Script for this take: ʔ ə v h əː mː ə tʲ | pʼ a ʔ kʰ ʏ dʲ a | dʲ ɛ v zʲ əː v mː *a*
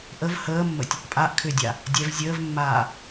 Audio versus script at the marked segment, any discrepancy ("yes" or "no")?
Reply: yes